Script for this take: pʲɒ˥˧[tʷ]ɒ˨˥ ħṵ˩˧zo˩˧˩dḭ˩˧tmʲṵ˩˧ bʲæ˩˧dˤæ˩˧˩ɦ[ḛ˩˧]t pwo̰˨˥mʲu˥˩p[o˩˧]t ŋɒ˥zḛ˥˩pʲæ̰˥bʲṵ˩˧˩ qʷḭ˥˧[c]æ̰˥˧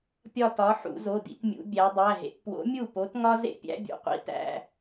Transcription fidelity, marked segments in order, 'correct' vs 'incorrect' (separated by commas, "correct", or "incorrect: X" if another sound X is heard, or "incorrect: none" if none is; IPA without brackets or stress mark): incorrect: t, correct, incorrect: o˨˥, incorrect: t